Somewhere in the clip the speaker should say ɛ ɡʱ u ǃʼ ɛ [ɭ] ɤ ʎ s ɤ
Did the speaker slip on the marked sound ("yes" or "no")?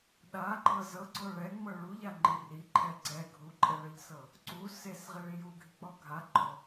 no